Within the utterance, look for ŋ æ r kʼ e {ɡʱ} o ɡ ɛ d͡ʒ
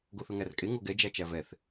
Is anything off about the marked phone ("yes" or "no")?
yes